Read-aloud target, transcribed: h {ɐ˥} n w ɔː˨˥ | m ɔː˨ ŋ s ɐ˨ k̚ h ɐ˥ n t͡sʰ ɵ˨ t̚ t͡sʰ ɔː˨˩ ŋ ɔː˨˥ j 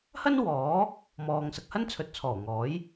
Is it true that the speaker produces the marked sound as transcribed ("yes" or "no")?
yes